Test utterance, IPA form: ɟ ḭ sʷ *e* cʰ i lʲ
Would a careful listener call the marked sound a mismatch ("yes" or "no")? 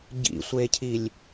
no